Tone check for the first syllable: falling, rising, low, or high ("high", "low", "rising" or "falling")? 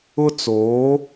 high